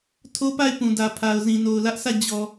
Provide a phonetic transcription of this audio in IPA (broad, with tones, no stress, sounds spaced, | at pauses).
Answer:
tʰ o˦ p a˦˨ ɪ̯ p ũ˨ d ä˨ pʰ a˨ ʊ̯ z ĩ˨ n o˨ ʊ̯ l ä˦ ʔ s ä˦˨ d͡ʑ ɔ˨